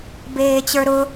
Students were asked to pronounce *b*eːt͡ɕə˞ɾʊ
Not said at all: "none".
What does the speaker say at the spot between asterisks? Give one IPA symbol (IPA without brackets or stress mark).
b